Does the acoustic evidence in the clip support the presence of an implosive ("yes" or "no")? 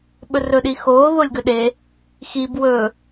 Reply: yes